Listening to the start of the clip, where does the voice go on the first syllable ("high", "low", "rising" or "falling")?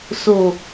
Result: low